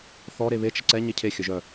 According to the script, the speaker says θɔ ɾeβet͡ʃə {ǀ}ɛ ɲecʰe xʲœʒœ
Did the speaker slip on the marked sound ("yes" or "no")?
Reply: no